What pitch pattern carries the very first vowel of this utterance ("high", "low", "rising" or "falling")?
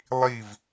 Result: falling